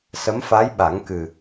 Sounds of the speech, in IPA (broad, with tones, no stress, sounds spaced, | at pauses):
s ə˧˥ m f a˧˥ j ɓ a˨˩˦ ŋ k ɨ˨˩